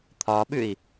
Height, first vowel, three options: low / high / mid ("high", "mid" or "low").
low